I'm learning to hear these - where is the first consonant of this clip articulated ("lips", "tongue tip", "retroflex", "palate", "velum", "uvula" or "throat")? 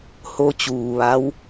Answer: throat